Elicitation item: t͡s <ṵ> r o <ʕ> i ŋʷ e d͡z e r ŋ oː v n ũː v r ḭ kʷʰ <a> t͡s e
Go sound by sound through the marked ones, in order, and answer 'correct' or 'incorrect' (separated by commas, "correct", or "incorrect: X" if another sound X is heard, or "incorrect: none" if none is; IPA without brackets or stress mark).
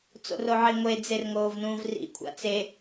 incorrect: o̰, correct, incorrect: a̰